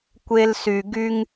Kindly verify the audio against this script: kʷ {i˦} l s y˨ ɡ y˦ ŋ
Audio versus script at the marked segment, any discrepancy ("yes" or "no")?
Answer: yes